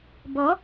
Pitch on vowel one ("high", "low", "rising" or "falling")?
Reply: rising